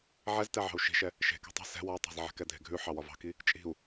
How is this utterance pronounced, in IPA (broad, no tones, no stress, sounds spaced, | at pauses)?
ʕ ɛ z t ɛ ʕ ɑ̤ u̯ ʃ i̤ ʃ ɛ | ʃ e̤ k e̤ tˤ ɛ̤ s ɛ̤ w ɒ tˤ ɑ̤ z ʕ ɛ̤ k ɛ dʱ e̤ ɡʱ ʉ ħ ɑ w ɒ v ɑ̤ k i | t͡ʃʼ i̤ u̯